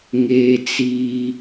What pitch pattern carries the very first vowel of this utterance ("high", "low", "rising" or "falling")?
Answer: high